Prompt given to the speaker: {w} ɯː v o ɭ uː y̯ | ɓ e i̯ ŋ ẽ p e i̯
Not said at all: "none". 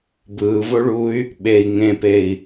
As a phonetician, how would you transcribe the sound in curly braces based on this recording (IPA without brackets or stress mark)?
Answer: b